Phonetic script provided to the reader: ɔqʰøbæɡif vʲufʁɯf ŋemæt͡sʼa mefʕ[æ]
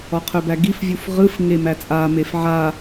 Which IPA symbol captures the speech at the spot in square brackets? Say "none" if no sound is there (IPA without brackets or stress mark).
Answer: a